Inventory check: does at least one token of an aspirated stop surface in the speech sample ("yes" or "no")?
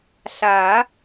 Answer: no